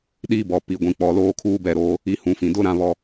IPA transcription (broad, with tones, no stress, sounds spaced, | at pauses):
ɗ i˦ b ɔ˨ p i˨ ɡʷ ĩ˨ k͡p ɔ˨ l oː˦ kʰ uː˦ b ɛ˦˨ ɾ oː˦ | i˦ h ũ˨˦ f ĩ˨ d ʊ˦ ɾ ã˦ β ɔ˦